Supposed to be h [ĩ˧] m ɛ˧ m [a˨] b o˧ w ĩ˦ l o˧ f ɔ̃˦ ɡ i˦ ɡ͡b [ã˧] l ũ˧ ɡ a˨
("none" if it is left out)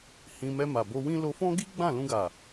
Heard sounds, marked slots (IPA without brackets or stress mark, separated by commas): ĩ˧, a˨, ã˦˨